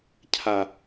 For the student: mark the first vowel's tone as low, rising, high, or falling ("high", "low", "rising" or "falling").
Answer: low